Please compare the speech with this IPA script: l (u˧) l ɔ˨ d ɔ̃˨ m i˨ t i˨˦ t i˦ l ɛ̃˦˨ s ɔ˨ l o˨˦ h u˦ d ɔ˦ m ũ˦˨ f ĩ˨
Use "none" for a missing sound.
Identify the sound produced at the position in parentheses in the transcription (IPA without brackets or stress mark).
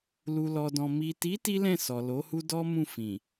u˨